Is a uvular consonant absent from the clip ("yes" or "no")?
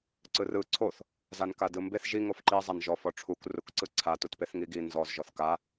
yes